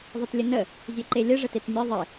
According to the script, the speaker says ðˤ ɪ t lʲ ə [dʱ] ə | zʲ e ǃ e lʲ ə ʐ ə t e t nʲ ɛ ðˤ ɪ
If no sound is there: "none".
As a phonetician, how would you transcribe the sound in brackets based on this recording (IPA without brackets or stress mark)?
n